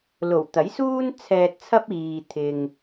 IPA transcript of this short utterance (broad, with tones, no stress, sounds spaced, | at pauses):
l o˨˩ w t̪ ɐ˨˥ j s uː˥ n t͡sʰ ɛː˧ t̚ t͡sʰ ɐ˥ p̚ iː˧ t̪ʰ ɪ˧ ŋ